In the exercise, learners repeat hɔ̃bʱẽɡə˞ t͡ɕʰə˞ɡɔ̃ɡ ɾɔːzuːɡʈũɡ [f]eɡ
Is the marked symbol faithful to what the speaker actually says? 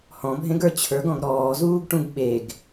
no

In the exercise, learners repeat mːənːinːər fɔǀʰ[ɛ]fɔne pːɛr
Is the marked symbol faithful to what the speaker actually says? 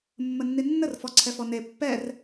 yes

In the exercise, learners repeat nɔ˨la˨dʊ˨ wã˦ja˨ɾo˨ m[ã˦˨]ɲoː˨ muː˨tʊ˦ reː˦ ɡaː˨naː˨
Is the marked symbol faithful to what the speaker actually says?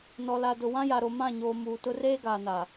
yes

